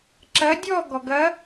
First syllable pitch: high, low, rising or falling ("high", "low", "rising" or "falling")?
rising